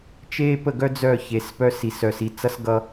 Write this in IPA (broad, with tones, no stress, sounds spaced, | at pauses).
t͡ʃ eː˦ p ə˦˨ ɡ œ˦ d͡z œ˦˨ ç e˨ s p œ˦ s i˨ s œ˨ s i˨ t͡s ʌ˦ s ɡ ʌ˦